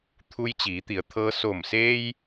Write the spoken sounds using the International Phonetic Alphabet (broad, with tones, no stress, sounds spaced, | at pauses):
t̪ʰ u˧ j t͡ɕ iː˩˧ t̪ i˩˧ ə̯ t̪ʰ ɤː˧ s o˧˩ m s eː˧ j